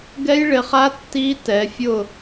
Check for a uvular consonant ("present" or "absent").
present